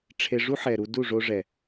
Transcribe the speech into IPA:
ʈ͡ʂʰe˧ʐu˦ħɛ˨ɾu˧ du˦˨ʐo˧ʐɛ˨

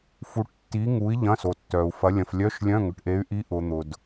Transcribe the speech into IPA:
fu˧˥ʈtːi˧˥ŋu˧˥i̯ ʎɐ̃˧˥˧so˨tːœ˨u̯fɐ˧˥ lʲɐ̃˨flʲœ˧˥˧ʃlʲœ̃˧˥˧ ŋʏ˨ʈʔe˧˥y̯ ʔi˧˥ʔʊ˨ n̪ʊ˨d

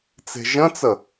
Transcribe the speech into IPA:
t͡se̤ʒə̃t͡sə

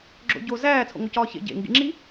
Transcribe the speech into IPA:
ɡ͡ǁo̰ɟo zæː t͡sʰo̰ŋocɒːçḛ ɟḛ ŋɡḭŋ͡ǁi

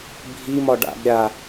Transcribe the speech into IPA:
bʱimɒ ɖa̰b ɾʲa

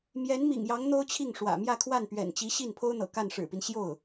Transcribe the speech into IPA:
mjɛ˧˥nmḭ˨˩ŋjɑ˧˥ŋ n̪o˥ʊ̯t͡ɕʰi˥˩ŋʂwä̰˨˩ mjä˥˧kʰwa˥˩npɥɛ̰˨˩nt͡ɕi˧˥ ɕi˥˩n pʰo˥ʊ̯n̪ɤ̰˨˩ ka˥˩nʂɻ̩˨˩pi˦n ɕjo˥˩ʊ̯

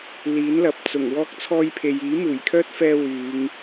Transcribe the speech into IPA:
liː˨˥nlɐ˨p̚t͡sʊ˨˩ŋ wɔː˧k̚t͡sʰɔː˧jpʰe˨jiː˨˥ muː˨˩jkʰœː˥t̚fɛː˧ wyː˨˧ŋ

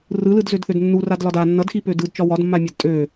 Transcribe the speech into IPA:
rɯlɯdzødθød nːuradlɒd a nːʌdxipø dɯdt͡ʃɒ wɒdmːamʲad tʼø

